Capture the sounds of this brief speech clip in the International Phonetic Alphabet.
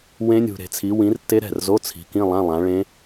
wẽ˦˥nʲṳ˨ɾe̤˨t͡sʰi˨˦ wĩ˨˦rtːe˦˥ɾɛ̤˥˩rzo˧˥˧ t͡sʰi̤˨˦kĩ˧˥˧lˠã˧˥˧ lˠã˨˦ɭẽ˦˥

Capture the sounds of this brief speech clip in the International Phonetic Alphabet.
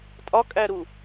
tʼɒkʼæɾu

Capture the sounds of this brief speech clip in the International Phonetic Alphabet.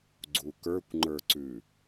ɡ͡ǀukə˞kʷ ŋ͡ǃə˞ǀʉ

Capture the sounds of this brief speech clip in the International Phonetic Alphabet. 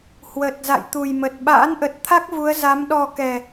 hwə˨˩t̚ za̰˧˨jt̪u˨˩jmə˨˩t̚ ɓa̰ː˧˥nʔə˨˩t̚t̪ʰa˦˥k̚ vu˨˦ə̯za˨˦m ɗɔ˨˩ kɛ˨˩

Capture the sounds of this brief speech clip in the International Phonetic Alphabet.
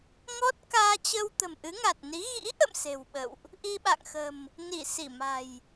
ŋɔ˦˥t̚kaː˧t͡ɕə˧w t̪ə̤˨˩mʔɨ˨˦ŋa˨˩t̚ni˨˦ ɣḭ˧˥ʔə̰˧˨m se̤˨˩wɓə̰˧˨wʔ | ʔi˧ɓa̰˧˨ŋxə̤˨˩m | ni˧˩ si˧˩ma̤˨˩j

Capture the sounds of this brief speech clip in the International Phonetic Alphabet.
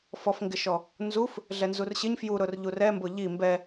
fɔfŋɡɪʃɔ | nzuf | ɮɛnzurɕɪɲ fjuɾʊr ʎurɛmbʊ ʎi mbɛ

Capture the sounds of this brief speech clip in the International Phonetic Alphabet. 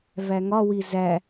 væŋɒwi zæ

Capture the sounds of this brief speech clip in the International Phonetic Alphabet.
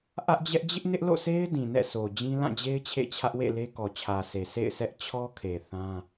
ʔä˦ʔd͡ʑɛ˦ʔ d͡ʑɪ˦ʔnɪ˦ʔlo̰˦˨se˦ɪ̯ dĩ˨nɛ̰˦˨so˨d͡ʑĩ˦ lã˦˨d͡ʑe˦ɪ̯ t͡ɕʰḛ˦˨t͡ɕʰä˦ʔwḛ˦˨le˦ kɔ˨t͡ɕʰä˨sʰe˨ sḛ˦˨ɪ̯ sɛ˦ʔ t͡ɕʰɔ˦kʰe˨ θã˦

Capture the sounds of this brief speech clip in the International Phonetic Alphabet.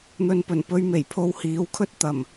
n̪ɵ˨npɵ˨˩npɵ˧ɥme˨˩j pʰo˧whiː˨˥wkʰɵ˥t̚ t̪ɐ˨˩m

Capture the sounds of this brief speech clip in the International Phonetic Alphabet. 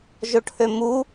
ʒoʈʰømu

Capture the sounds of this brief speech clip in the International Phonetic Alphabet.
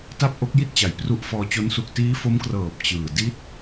ta˥˩p̚ʔo˦˥k̚ji˥˩t̚t͡ɕa˩˦j pru˦˥ʔfɔː˧t͡ɕo˦˥n su˨˩k̚ tiː˦˥fo˦˥mkrɤː˨˩p̚ t͡ɕɯː˨˩ di˥˩t̚

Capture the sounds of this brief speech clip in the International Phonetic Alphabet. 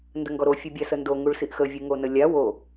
ndəŋɡɔɾo fʲubʲasəndo ŋuɭsiʔxə vʲuŋonəlʲa wo

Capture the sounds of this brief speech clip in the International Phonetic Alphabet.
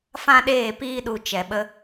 fã˦ɗeː˦˨piː˦ɗu˧ t͡ʃɛ˨ɓə˧

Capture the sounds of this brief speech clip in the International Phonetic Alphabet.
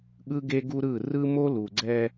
ɠɯ˦ɡe˦ɡu˦ɾɯ˦˨ rɯ˦mo˦lu˨ɡ͡ǀɛ˦

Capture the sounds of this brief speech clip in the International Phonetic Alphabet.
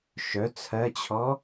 ʃœ t͡sʰɜt͡ɕʰɔ

